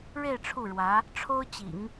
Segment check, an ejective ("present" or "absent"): absent